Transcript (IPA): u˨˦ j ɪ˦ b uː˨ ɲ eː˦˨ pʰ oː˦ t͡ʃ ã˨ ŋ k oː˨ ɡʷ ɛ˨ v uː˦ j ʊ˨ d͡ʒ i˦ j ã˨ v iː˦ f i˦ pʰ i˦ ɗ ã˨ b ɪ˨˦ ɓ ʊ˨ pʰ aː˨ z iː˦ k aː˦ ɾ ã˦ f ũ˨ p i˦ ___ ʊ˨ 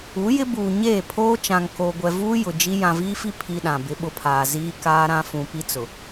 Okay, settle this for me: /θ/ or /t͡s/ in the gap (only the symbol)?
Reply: t͡s